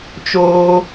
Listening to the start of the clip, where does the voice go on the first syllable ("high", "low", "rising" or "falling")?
high